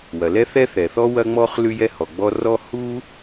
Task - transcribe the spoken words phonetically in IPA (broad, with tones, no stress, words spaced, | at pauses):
wɐ˩lɛ˥θɛ˥θɛ˩ θɔ˥ wɐ˥ŋ͡mɔ˥χ lʉ˥jɛ˥hɔ˩ɡ͡bɔ˥ rɔ˥ hu˥